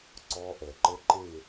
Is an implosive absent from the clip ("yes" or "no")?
yes